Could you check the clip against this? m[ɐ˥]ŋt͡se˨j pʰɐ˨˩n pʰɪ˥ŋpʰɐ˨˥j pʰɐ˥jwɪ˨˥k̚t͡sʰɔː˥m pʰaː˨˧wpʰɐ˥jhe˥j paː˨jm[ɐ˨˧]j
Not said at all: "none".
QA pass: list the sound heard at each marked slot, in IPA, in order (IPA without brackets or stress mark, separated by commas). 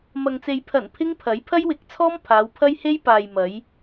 ɐ˨, ɐ˨˧